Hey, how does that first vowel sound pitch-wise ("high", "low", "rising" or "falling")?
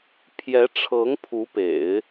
rising